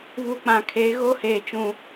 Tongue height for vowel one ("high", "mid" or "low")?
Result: high